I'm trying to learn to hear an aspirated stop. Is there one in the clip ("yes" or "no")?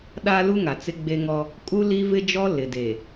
no